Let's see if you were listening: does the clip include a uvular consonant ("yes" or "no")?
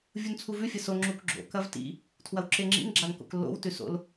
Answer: no